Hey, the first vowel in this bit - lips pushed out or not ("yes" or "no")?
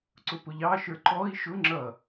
yes